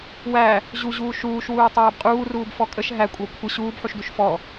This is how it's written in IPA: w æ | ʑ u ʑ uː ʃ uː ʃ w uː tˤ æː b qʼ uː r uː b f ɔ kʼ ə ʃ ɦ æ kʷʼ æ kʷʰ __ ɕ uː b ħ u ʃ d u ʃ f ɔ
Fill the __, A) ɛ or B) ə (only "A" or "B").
B